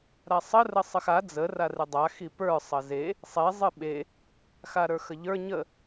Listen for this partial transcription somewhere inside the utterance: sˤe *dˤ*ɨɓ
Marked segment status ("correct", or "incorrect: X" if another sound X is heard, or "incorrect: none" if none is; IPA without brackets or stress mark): incorrect: zˤ